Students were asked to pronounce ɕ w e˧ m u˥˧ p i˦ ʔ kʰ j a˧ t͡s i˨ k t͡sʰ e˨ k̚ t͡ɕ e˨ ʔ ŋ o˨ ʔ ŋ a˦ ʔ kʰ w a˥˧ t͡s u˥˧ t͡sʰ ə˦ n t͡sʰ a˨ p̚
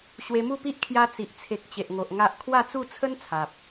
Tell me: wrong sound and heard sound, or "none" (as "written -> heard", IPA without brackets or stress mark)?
k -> ʔ